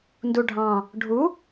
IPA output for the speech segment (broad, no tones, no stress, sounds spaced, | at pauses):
n d u ɖʱ ɑ̃ | ɖʱ u